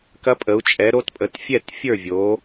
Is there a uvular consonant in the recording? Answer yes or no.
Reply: no